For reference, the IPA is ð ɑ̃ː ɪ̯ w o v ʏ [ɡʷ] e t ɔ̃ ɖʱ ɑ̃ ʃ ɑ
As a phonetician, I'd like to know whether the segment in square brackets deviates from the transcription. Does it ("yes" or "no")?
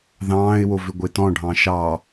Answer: no